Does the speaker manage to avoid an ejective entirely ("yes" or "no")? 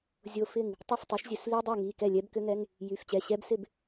yes